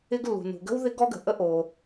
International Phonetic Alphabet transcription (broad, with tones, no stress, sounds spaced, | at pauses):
ɪ˥ ɡ lː ṳ˩ n ṳ˩ ɡ ə̤˥ w ð ɪ˥ ɡ ɔ˥ ɡ ə̤˩ ʔ ə˥ ʔ o˩